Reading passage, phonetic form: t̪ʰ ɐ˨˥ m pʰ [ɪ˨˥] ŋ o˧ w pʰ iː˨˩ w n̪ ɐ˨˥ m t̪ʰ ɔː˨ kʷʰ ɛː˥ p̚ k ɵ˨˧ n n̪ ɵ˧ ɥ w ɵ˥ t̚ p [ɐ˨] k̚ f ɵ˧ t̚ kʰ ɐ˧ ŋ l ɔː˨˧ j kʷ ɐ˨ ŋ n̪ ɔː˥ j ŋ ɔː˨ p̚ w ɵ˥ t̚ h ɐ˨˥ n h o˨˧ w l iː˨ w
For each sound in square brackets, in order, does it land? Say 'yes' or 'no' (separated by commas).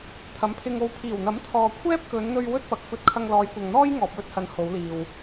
no, yes